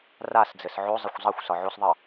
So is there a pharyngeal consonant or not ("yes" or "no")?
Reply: yes